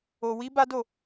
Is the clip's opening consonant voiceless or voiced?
voiced